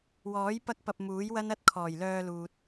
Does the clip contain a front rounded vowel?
yes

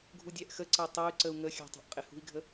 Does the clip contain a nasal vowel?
no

